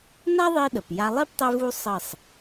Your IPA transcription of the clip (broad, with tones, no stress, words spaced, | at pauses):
na˦ ðˤi˦ɗə˨p ja˧lˠi˦p tˤe˦vu˦ sˤə˦˨sˤ